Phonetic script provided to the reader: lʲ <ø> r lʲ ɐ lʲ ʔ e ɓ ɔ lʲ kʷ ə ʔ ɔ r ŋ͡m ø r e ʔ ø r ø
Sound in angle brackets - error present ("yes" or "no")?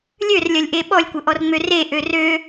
no